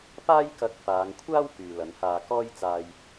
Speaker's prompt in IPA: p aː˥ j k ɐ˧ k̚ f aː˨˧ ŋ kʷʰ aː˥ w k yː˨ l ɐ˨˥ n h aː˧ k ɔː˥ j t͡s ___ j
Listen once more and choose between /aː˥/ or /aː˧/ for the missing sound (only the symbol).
aː˧